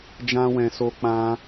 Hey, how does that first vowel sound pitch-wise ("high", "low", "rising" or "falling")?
high